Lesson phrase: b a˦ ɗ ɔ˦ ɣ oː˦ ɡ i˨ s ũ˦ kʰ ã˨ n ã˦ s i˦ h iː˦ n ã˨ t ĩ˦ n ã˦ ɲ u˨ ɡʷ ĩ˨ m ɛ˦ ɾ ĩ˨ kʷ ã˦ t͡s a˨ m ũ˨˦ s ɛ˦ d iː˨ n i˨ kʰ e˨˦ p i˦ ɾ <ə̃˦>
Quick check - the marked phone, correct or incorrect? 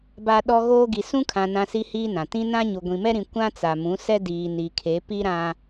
incorrect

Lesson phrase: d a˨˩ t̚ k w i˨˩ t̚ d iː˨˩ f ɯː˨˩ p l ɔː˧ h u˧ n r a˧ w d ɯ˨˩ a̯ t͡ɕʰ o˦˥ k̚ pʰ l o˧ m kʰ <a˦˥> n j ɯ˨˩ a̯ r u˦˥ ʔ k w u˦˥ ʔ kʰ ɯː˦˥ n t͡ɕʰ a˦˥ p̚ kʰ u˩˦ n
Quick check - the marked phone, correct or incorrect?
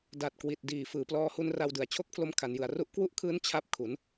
incorrect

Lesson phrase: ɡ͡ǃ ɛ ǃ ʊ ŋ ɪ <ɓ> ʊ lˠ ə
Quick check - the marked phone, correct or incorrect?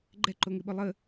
correct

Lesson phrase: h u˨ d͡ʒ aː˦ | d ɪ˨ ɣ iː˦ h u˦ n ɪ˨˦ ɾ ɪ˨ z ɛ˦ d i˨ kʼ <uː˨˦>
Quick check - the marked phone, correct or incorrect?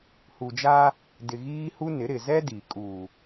incorrect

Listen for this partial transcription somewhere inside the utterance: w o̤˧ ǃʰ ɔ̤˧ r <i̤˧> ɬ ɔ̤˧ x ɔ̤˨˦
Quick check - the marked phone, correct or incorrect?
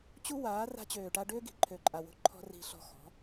correct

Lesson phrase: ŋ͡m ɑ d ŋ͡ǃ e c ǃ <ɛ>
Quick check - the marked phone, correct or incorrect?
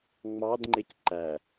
incorrect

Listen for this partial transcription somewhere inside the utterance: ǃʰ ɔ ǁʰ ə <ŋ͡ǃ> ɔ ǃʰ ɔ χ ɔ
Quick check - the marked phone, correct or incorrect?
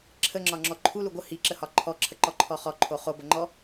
incorrect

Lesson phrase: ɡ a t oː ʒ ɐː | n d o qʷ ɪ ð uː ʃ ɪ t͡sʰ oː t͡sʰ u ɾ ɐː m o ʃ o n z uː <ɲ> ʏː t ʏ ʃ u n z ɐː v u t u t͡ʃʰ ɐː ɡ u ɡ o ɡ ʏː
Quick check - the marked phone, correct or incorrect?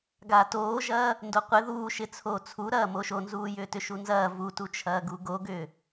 incorrect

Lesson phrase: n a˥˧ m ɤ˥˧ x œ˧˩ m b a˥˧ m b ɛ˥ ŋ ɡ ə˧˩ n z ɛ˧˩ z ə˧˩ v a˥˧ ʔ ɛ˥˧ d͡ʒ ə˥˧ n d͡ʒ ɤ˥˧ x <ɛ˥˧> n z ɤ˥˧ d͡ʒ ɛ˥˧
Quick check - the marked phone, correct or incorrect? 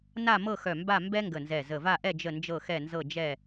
correct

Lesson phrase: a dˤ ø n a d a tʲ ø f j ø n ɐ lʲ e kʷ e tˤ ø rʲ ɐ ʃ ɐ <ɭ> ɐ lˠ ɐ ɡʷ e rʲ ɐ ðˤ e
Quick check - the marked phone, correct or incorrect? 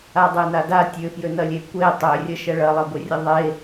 correct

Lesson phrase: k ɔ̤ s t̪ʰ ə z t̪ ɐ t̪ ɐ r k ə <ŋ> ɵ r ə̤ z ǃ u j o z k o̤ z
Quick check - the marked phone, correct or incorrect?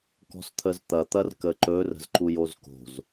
incorrect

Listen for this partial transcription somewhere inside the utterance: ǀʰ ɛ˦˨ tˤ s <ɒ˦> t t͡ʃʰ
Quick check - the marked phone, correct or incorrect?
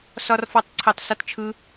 correct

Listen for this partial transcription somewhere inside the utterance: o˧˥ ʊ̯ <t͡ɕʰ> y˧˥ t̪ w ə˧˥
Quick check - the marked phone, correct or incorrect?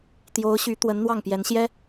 incorrect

